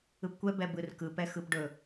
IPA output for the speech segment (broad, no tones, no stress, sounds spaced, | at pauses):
ɯ p kʷ ɛ b ɛ b ɯ r k ɯ p ɛ x ɯ p ɖ ɵ